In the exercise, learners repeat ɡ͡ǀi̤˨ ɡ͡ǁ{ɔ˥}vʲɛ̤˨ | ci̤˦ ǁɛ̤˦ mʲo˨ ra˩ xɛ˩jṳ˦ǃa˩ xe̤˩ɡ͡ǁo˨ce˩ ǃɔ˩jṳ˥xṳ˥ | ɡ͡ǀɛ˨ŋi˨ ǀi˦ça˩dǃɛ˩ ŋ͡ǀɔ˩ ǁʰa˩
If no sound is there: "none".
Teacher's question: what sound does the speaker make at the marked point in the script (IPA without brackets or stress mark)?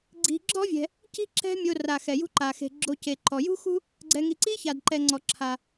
ɔ˥